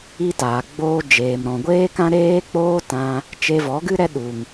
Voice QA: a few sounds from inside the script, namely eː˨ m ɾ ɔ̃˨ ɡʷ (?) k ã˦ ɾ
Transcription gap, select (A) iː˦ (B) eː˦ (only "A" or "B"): B